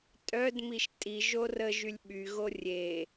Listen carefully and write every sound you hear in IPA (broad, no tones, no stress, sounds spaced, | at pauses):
tʼ œ d m i ʃ tʼ i ʒ o r ə ʒ y lʲ ɓ y ɣ o rʲ e